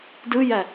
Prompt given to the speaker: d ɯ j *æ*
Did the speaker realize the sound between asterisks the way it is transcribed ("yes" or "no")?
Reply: yes